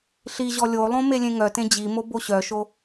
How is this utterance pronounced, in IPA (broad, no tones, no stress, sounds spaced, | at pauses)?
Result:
ɬ i ʑ ɔ lʲ o lˠ õ m e lʲ ẽ ŋ œ t ẽ d͡ʑ i m o b o ɕ œ ʃ o